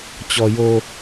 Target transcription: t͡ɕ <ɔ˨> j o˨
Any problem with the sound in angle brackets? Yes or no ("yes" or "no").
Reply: no